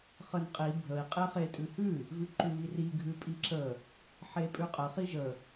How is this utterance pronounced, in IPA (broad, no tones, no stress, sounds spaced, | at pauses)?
χ ə n qʼ i bʱ ə i̯ qʼ e χ e tʼ ʉ h ʉ | v ʉ ǃ ʉ β i r i ɡʱ ʉ pʼ i ǁ ə | ħ e pʼ ʉ qʼ ə χ i ʒ ə